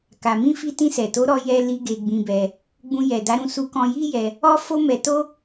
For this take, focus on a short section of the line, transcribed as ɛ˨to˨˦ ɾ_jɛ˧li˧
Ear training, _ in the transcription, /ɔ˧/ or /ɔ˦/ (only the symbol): ɔ˧